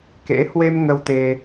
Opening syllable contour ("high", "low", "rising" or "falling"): rising